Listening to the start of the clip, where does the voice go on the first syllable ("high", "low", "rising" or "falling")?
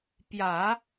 low